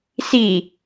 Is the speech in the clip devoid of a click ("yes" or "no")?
yes